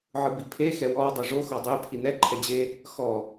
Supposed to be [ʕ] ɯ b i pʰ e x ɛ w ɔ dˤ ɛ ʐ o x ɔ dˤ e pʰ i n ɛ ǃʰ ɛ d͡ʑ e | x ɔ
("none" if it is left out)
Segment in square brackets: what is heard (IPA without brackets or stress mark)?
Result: ʕ